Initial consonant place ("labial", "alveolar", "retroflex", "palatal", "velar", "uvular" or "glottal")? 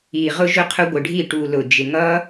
uvular